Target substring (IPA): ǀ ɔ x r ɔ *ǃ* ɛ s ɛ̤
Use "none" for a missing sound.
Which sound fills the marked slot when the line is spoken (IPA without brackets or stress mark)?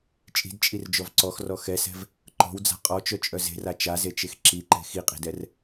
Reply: x